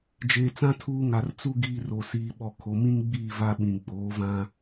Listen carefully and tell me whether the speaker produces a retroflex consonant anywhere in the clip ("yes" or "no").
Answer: no